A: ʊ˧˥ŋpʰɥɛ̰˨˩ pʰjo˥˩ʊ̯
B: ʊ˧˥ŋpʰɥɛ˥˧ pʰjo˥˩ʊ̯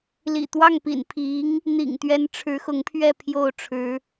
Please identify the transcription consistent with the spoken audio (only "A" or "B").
B